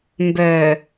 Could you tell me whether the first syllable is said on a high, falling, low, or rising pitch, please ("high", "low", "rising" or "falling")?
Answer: low